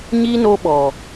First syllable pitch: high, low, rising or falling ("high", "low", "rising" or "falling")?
high